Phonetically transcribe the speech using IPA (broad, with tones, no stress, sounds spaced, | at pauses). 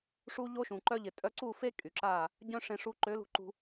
ʂ u˦ ʎ o˦ ʃ ũ˨ ǃ œ˧ ʎ ɪ˨ tʼ œ˧ ǀ u˦˨ f e˦ kʼ y˨ ǁ a˦˨ | ɟ œ̃˦ ʂ ẽ˧ ʂ u˧ ǃ ø˨˦ l ṳ˧ ǃ ṳ˧